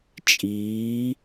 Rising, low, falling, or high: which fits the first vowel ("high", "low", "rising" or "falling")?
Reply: rising